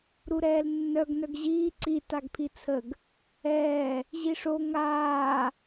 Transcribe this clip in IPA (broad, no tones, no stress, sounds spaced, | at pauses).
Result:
ɾ u ɾ ɛː l nː œ ɡ n œ ɡ ʑ iː ǀ i t a ɡ pʰ i t͡sʰ ə ɡ | ɛː | ʑ i ʂ o ŋ aː